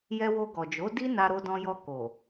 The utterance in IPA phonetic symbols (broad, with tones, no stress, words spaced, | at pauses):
jɛ˧wo˧ɡɔ˨d͡ʒo˨˦ di˦ na˧ɾo˧dɔ̃˧jɔ˧ ko˨